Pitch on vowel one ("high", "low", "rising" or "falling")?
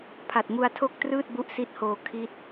low